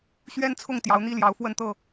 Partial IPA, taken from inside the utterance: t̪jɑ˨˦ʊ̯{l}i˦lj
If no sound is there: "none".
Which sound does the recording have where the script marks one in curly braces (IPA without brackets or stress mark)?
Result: n̪